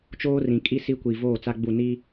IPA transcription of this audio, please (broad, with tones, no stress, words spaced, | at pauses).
t͡ʃoː˦ rĩ˨kʼi˦ si˦ kʷi˨ voː˦˨t͡sa˦ɡ͡bu˦˨ ni˦